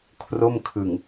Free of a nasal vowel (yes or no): yes